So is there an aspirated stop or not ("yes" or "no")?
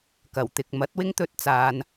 no